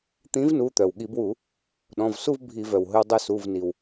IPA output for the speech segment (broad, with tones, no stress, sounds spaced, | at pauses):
t̪ ĩ˨˥ v n u˩˧˩ t̪ œ˩ w ɠ i˧˩˧ b w u˧˩˧ | ɗ ɔ̃˩˧˩ v s u˥˧ v bʱ i˧˩˧ v œ˩ w ɦ ɵ˧ w dˤ œ˧ s u˩˧˩ v n i˩ w